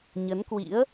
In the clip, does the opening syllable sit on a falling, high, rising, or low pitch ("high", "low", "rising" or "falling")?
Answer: rising